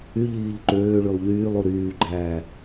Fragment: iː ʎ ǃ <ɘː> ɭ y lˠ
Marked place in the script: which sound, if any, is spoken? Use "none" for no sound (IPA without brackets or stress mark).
øː